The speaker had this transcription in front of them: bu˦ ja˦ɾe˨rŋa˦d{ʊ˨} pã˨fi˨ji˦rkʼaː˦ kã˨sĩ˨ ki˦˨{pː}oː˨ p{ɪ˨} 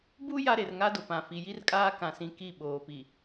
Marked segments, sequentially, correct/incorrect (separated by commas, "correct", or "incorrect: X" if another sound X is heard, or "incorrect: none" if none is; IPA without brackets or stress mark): correct, incorrect: ɓ, incorrect: i˨